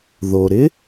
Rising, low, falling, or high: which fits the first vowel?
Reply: low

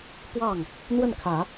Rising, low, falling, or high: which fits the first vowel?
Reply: falling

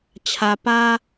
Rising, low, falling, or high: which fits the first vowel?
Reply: low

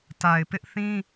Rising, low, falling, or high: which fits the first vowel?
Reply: low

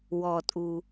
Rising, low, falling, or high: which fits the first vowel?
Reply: low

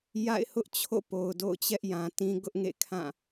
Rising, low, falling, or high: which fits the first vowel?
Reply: falling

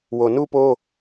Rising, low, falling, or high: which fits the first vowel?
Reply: low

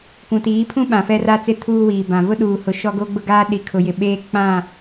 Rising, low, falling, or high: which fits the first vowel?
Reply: low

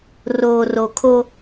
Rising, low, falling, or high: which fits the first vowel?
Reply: low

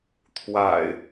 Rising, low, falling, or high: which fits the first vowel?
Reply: low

